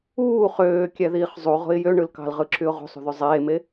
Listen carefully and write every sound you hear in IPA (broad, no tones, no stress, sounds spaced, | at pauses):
uː χ øː kʲ æ ð iː χ zˤ u ʁ o̤ ɪ̯ j ø ɳ ɯ l k ɑ̤ l ʁ ɯ ǁ y ʊ̯ ʁ ṳ sˤ ṳ ð y zˤ eː m e